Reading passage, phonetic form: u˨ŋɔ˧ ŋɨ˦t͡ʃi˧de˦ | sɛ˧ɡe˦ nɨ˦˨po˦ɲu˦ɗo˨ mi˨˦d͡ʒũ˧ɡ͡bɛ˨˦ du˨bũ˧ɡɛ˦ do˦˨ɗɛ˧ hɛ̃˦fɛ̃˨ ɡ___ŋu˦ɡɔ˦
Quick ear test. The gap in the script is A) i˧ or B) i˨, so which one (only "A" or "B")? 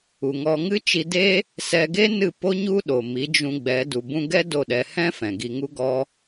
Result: A